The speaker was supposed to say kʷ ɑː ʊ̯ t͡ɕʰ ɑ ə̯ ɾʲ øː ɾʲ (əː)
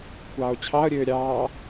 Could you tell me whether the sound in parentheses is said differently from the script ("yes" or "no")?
yes